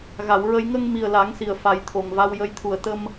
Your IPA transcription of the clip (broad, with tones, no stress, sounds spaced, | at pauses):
ɣ a˨˩˨ w ɹ ə˧ j ŋ ə˧ ŋ m i˨˩ ə̯ l a˨˩˦ ŋ s i˨˩ ə̯ f a˨˩˦ j t̪ʰ o˨˩ ŋ v a˧ w j ə˧ j t̪ʰ u˨˩ ə̯ t̪ ə˧ m